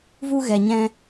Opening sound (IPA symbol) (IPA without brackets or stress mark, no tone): v